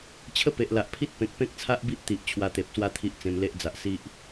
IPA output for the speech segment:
t͡ɕʰ ə˦ p e˨ ʔ l a˨ ʔ pʰ i˦ t̚ p ẽ˨ k̚ p ẽ˦ k̚ t͡sʰ a˦ ʔ b i˦ ʔ t̪ i˨ ʔ t͡ɕʰ w a˧ t̪ e˨ p̚ s w a˦ t̪ʰ i˦ ʔ t͡s ẽ˧ m l e˦ ʔ d͡z a˨ ʔ s i˦ ʔ

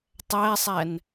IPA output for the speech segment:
tˤ æ sˤ æ n

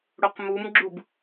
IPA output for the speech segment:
ɽ o q m u m ɡ͡ǁ u b

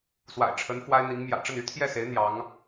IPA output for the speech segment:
s w a̰˨˩ ɪ̯ ʈ͡ʂʰ ə˧˥ n f w a˥ ɪ̯ n̪ i˧˥ ŋ m j ä̰˨˩ ʈ͡ʂ ə˥˩ n y˥ t̪ʰ j ɛ˥˩ s e˧˥ ɪ̯ n̪ j ɑ˧˥ ŋ

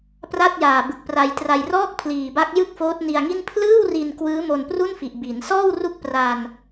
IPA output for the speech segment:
p r a˥˩ t̚ j aː˨˩ b ɯ˨˩ k̚ p r a˧ j t r a˧ j r ɔː˥˩ k̚ pʰ l iː˨˩ b a˦˥ k̚ j ɯ˥˩ k̚ f oː˦˥ t̚ n i˧ a̯ ŋ i˥˩ n pʰ l ɯː˥˩ w r i˧ n k w ɯː˦˥ m o˧ n p r u˥˩ n f i˨˩ ʔ b i˩˦ n s ɔː˥˩ w r u˦˥ k̚ p r a˧ n

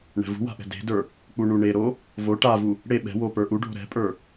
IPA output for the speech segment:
ɳ ɛ̤ v ṳ w a̤ ʔ ɛ̤ d e̤ d ə˞ | k͡p u ɳ u ɳ e ɾ o | v o ʈ a v u | ɽ e ɓ ɛ̤ w o p ə˞ ʔ u ɖʱ o̤ ɾ ɛ̤ pʼ ə˞

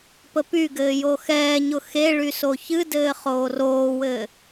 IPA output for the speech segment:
p ə p y ɡ ɘː j o x ɛː ɲ ʊ x e ɭ y s o ç ɨ d ɘː χ oː r oː w ɘː

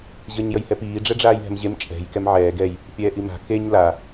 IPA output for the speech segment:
ʑ əː ɲ j ə j h ɛ p iː ɖ͡ʐ ɛ ɖ͡ʐ aː j ɦ ɛ̤ m ʑ e m t͡ʃʼ ɛ̤ j k ɛ m ʕ ɛː ɡ ɛ j | pʲ ɛː ʔ i m a̤ k e ɲ l a

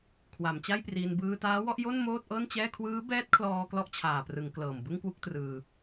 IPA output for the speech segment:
kʰ w a˩˦ m t͡ɕ a˥˩ j p r iː˧ n b ɯː˧ t aː˦˥ w ɔ˥˩ ʔ j o˥˩ n m oː˥˩ t̚ ʔ ɤː˥˩ n t͡ɕ ɛː˥˩ kʰ w ɯː˦˥ b ɛː˦˥ t̚ kʰ l ɔː˧ k l ɔ˥˩ ʔ t͡ɕʰ aː˨˩ p r ɯ˩˦ ŋ k l ɤː˨˩ m b ɯ˥˩ ŋ k w u˥˩ k̚ t r ɯː˧

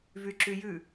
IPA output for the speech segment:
v y ǁ y j ʉ

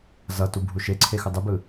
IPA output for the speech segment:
z ʌ t u bʱ u ʃ e ǀʰ e x ɯ dˤ ɯ b ɯ

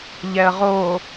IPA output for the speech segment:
ʎ ɛ ə̯ ʁ o

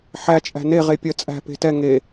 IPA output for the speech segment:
ħ æ t͡ʃʼ æ̤ n e ʁ e pʲ ɜ t͡sʼ æ̤ p e̤ t ɛ ŋ e

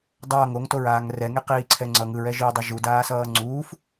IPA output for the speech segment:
dˤ ʌː ŋ o ŋ t o ɹ aː ŋ r ɛ ŋ e q iː ǀʰ ɛ ŋ͡ǀ ʌ ŋ ɯ ɹ ɛ ʒ iː dˤ ɛ ʒ u d aː s ʌː ŋ͡ǀ uː f

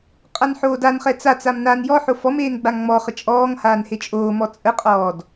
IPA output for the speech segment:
qʼ a n ħ oː d a n χ ɛ t͡s a t͡s a m n aː n j ɔ ħ o f ɔ m eː n ɡ͡b a ŋ ŋ͡m ɔ χ ə t͡ʃʼ ɔː ŋ h aː n h e t͡ʃʼ oː m ɔ t͡sʼ ə qʼ ɔː d

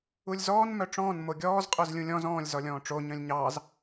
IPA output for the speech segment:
u lʲ z ɔː n m œ ʈ͡ʂ ɔ̃ː n m o ɡʲ ɔː z qʼ œ z lʲ ũ lʲ ɔ̃ z ɔ̃ː lʲ z ɔ lʲ ɔ̃ː ʈ͡ʂ o ɲ œ̃ lʲ ɲ ɑː z

